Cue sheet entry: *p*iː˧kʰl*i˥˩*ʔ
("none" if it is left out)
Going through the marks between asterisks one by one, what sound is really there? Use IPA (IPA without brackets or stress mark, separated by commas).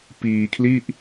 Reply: p, i˥˩